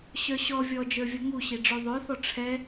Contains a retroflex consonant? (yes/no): yes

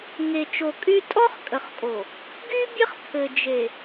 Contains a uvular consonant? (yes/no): yes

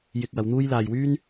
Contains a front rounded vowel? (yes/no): yes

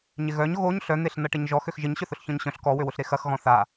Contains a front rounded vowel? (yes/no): yes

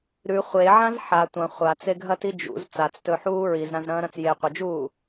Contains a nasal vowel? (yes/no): yes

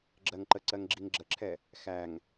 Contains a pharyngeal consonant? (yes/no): no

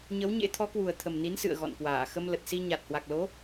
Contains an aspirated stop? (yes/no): yes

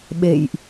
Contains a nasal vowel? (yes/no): no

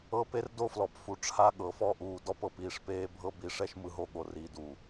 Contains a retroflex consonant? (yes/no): yes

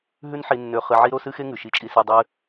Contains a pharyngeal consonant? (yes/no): yes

